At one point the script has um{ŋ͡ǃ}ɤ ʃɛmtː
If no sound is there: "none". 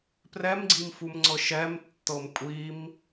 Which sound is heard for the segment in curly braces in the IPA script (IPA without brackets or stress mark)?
ŋ͡ǀ